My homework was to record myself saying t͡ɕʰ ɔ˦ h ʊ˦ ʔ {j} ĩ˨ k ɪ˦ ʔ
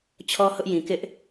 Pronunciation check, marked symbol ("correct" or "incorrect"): correct